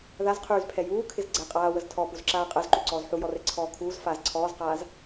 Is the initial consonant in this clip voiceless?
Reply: no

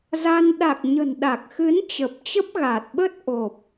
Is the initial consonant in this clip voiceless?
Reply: no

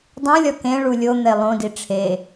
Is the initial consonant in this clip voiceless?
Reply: no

